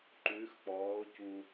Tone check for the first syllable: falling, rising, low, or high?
rising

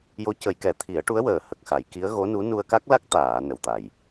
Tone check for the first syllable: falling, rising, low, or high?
rising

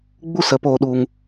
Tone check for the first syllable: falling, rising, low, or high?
high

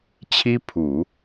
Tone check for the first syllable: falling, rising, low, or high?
high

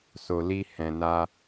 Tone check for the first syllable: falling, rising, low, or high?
low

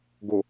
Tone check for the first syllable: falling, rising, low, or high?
low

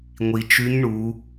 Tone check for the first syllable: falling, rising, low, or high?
low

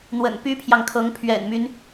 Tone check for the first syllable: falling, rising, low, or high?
low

